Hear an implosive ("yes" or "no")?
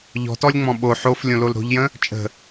yes